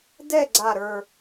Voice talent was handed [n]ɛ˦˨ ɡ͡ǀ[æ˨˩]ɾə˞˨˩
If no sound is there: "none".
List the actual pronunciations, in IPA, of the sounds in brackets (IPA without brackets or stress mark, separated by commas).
d, a˨˩